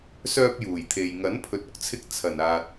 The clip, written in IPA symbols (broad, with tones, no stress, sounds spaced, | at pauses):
s œː˧ p̚ j uː˨˩ j t̪ʰ e˨ j ŋ ɐ˨˥ n pʰ ɵ˨ t̚ ʊ˨ k̚ t͡sʰ ɪ˧ k̚ t͡sʰ ɐ˨˩ n aː˨ t̚